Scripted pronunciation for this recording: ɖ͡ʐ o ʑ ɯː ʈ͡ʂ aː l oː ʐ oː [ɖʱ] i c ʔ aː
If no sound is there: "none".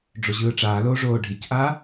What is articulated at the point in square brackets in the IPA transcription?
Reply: ɖʱ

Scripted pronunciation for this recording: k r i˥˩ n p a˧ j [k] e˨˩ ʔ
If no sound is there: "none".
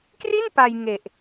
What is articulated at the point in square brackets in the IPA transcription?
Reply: ŋ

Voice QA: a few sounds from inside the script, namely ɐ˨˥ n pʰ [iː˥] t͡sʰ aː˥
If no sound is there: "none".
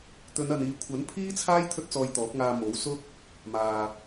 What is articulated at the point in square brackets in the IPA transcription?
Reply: iː˥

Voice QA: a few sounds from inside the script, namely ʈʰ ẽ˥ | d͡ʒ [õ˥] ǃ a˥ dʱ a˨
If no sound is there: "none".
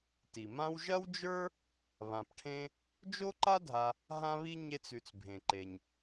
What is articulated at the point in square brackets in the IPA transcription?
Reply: o˥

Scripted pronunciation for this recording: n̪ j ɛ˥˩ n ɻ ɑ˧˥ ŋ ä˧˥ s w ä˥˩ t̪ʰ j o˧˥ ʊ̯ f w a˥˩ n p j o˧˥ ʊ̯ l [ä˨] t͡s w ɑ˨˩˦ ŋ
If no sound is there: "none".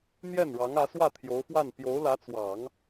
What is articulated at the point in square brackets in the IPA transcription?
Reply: ä˧˥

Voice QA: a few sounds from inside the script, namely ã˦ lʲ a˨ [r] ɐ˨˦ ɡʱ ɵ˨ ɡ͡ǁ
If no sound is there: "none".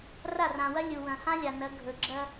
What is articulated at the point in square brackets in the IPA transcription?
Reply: n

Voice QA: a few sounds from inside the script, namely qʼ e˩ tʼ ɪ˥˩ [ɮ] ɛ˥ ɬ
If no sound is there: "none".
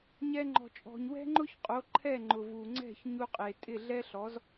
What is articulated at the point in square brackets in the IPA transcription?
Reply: ɮ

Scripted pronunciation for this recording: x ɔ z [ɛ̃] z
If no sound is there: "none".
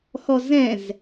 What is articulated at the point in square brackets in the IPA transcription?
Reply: ɛ̃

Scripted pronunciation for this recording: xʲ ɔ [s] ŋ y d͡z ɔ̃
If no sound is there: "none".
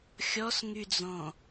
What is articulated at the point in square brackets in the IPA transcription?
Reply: s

